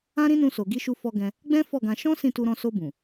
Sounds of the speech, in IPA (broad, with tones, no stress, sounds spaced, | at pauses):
ã˦ ɾ ĩ˦ n ũ˧ s o˨ ɡ i˧ ʃ u˧ f ɔ˧ ɡ ɛ̃˧ | ɡ͡b ɛ̃˦ f ɔ˦˨ ɡ ã˧ ʃ ɔ̃˦ s ĩ˦˨ t u˧ ɾ ɔ̃˧ s o˧ b ũ˨